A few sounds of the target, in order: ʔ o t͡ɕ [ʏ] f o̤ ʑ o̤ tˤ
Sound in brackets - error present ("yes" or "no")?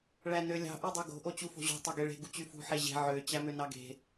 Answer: yes